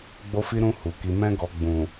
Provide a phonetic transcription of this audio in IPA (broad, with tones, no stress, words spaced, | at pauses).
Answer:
ɡ͡bo˧fi˧ɾũ˧ hu˨ ki˨mɛ̃˧ɡɔ˨ ɡ͡bũ˨